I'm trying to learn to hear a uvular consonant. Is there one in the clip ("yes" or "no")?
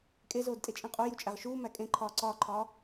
yes